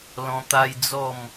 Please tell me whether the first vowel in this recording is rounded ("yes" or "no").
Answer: yes